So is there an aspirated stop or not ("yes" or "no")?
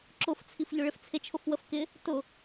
yes